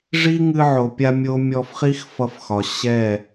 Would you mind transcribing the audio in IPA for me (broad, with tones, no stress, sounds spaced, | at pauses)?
ʐ i˦ ŋ ɨ˧ ʕ o˨ pʲ a˧ mʲ o˦ mʲ ɔ˧ f χ i˦ x f ʌ˧ f x ɒ˨ ɕ ɛ˦˨